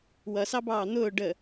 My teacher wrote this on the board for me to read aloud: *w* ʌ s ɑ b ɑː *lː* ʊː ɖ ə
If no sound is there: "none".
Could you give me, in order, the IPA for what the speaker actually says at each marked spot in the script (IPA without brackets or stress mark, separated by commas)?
w, n̪